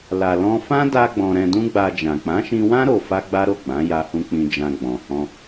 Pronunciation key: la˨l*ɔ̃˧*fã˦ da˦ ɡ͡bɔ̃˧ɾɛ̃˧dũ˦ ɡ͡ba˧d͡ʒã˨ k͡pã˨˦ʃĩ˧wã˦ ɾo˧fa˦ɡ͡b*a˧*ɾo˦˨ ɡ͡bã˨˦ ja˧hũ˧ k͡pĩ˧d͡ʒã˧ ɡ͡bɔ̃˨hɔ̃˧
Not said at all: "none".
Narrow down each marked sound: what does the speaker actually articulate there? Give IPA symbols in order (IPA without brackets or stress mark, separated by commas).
ɔ̃˧, a˦